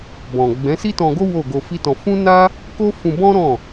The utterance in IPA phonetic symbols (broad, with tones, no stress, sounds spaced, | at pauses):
b ɔ̃˨ ɡ͡b ɛ̃˨˦ s i˦ t ɔ̃˧ ɡ o˦ w o˦˨ ɡ o˧ f i˦ t ɔ̃˧ f ũ˦ n a˦ | k o˦ f ũ˧ b ɔ̃˦ ɾ ɔ̃˦˨